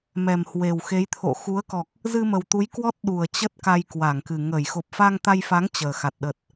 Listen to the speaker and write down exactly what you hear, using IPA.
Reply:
mɛ˨˩mhwe˨˩wxe˨˦j t̪ʰo̰˧˨ xu˨˦ə̯kɔ˨˩k̚ | zɨ˧mə˨˩w t̪u˨˦jkwɔ˦˥t̚ ɗu˨˩ə̯t͡ɕə˦˥t̚ ka˧jkwa˧˩ŋkɨ˨˩ ŋə˧˩j xo˨˩p̚fa˧ŋt̪a˧jfa˨˦ŋ t͡ɕəː˨˩xa˨˩t̚ ɗə˨˩t̚

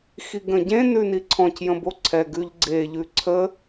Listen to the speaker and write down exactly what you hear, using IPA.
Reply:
xiɡə̃ɟẽ nʉniǀʰɔ̃c jə̃boǀʰɛ ɡʉʎɡ͡ǀe ʎʉǀʰə

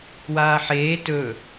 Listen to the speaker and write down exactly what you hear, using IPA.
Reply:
waːħeː tɵ

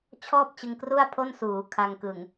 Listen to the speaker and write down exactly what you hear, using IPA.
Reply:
t͡ɕʰɔː˥˩p̚t͡ɕɯ˧ŋ kru˥˩a̯pʰo˥˩nsuː˩˦ kʰa˧ŋkɯ˨˩ŋ

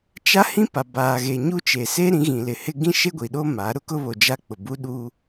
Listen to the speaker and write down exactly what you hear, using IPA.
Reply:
t͡ʃa˦hĩ˦ pa˨baː˨ɣe˨ ɲu˦ t͡ʃe˨se˦ ɾĩ˨˦ ɣĩ˨lɪ˨hɪ˦ ɡĩ˦ʃe˦ɡʷi˨ ɗo˦ ma˨˦ ɾʊ˦kʊ˦βo˨ d͡ʒa˦k͡pʊ˨ bu˦ɗu˦

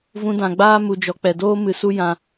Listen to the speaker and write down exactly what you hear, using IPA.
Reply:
vũ˧dã˨ɡ͡baː˦ mu˧d͡ʒɔ˧ k͡pɛ˨doː˦ mɨ˧su˦ jã˧

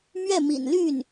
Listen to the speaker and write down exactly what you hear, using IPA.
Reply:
mɥɛ˥˩mḭ˨˩nly˥˩n

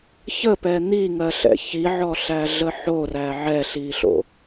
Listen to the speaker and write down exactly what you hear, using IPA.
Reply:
çəpɛ n̪iŋɜɬɛ̰ çiʕɔɬæɮə ħoræ ʕɛɬiɬo̰

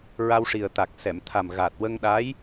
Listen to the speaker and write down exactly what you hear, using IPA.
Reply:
ɹa˧wʂi˨˩ə̯t̪a˨˩k̚ sɛ˨˩˨mt̪ʰa˨˩mɣa˨˩t̚ wə˧ŋ ɗa˧˥j

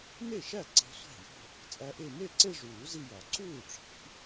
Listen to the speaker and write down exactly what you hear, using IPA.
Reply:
ne˥˩ʃæ˥˩ ǀe̤˧˥sʷæ̤˥˩jo̤˥˧ | t͡sʼæ˧˥ʔe˥˧ me˥˩ ǀe˥˧ʐuː˨˩˦ zi˥˧jɒ˨˩˦ ǀuː˥˩ʈ͡ʂʰi̤˨˩˦

